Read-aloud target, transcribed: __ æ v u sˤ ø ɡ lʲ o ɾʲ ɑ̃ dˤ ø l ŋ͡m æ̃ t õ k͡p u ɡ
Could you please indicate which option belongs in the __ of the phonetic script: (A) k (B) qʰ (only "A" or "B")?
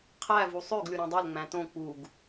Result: B